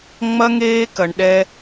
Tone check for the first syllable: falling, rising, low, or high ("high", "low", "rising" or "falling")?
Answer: high